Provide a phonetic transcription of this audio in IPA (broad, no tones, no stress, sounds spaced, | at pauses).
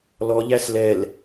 l ɔ ʎ æ s l ɛ l